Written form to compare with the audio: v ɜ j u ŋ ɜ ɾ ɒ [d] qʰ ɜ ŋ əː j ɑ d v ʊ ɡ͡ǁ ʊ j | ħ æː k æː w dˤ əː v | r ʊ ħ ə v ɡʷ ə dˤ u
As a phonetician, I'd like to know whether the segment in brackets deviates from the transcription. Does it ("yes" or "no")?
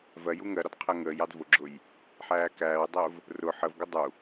no